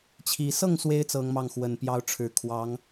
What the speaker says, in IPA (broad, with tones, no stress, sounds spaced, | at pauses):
t͡ɕʰ i˧˥ s ɤ˥˩ ŋ s w e˧˥ ɪ̯ t͡s ɤ˧˥ ŋ m ɑ˥˩ ŋ x w ə˨˩ n p j ɑ˧˥ ʊ̯ ʈ͡ʂʰ ɻ̩˨˩ kʰ w ɑ˧˥ ŋ